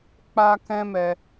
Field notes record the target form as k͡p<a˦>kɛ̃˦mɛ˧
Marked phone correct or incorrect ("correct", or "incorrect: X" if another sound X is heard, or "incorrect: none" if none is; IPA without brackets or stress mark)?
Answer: correct